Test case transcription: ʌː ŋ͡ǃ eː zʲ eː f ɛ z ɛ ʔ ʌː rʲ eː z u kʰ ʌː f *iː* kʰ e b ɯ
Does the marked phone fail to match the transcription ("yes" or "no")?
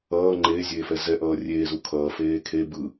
yes